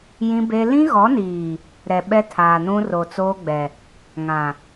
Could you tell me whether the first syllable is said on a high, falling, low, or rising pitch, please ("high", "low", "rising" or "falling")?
high